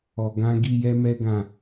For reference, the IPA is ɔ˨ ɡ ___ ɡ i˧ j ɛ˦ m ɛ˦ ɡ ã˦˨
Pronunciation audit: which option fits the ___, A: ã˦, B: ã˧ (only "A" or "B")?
B